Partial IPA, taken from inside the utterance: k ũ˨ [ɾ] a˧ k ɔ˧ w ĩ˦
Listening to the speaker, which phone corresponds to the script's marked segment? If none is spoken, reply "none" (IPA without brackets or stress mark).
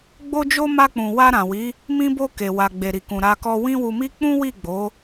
ɾ